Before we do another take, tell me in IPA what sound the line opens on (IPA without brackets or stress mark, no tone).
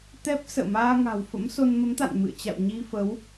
t̪